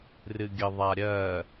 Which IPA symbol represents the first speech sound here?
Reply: r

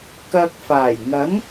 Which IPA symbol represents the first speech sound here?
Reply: k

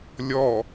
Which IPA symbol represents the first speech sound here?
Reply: lʲ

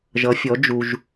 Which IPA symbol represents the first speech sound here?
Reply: ʒ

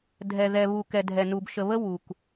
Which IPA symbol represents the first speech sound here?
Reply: dʱ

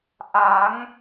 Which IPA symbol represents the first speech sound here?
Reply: ʔ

